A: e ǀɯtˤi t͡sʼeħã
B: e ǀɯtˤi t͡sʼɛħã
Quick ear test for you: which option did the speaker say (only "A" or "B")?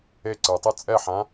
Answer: B